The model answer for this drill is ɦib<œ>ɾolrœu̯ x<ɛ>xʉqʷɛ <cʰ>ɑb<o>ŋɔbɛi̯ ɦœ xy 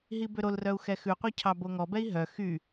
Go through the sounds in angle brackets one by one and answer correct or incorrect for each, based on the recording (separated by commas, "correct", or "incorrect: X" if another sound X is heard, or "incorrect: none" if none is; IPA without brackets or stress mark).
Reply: incorrect: ø, correct, correct, correct